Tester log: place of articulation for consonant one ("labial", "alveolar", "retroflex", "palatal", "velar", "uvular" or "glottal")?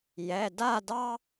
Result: palatal